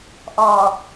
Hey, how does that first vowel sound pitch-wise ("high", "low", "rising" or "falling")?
low